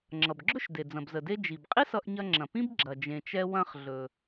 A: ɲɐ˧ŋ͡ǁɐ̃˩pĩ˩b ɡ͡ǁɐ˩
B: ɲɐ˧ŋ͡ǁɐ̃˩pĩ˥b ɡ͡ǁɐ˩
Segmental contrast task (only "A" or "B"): B